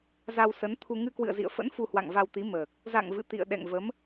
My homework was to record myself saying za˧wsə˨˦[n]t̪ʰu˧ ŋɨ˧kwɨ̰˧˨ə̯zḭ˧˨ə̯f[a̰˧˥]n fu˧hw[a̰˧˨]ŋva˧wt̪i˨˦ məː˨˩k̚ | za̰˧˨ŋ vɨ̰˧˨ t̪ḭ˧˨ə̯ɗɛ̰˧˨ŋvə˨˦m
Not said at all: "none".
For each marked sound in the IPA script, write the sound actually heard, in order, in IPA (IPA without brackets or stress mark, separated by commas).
n, ə̰˧˥, a̰˧˨